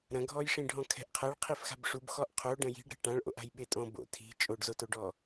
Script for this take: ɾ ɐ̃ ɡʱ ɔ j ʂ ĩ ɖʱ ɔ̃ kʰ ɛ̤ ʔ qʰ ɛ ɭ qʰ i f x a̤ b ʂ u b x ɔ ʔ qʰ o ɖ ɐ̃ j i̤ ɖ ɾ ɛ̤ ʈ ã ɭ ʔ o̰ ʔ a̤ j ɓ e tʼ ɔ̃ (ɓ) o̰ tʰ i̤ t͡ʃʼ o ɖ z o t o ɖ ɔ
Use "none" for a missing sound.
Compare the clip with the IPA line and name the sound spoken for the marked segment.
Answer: b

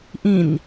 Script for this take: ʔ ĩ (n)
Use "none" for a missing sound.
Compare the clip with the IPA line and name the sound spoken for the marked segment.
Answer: n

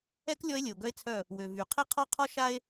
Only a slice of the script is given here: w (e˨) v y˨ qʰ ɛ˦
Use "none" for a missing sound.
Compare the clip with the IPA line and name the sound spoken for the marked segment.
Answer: ø˨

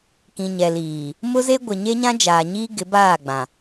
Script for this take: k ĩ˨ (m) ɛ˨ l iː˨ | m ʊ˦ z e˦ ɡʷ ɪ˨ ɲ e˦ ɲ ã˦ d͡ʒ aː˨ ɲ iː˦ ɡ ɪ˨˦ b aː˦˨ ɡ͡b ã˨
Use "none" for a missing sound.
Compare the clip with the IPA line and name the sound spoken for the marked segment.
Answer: ɲ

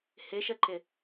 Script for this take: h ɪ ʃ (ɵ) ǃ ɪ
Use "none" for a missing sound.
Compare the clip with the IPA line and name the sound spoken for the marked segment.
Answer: ə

